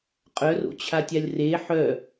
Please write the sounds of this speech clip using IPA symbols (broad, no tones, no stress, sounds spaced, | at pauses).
qʼ œ r o̰ t͡ɕʰ a tʲ a lʲ r e ħ œ